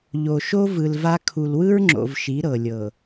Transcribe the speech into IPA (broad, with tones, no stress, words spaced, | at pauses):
ʎo˨ʃo˦ vɯ˨lva˦ kʰu˨lwɯ˦ɹŋ͡ǁo̰˨v ʃi˨˦ɾɤ˨lʲɤ˨